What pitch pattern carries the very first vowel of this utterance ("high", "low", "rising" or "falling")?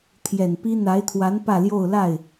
low